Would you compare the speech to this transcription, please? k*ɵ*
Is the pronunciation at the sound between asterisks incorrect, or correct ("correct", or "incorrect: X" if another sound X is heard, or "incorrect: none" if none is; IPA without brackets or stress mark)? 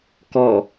incorrect: ɔ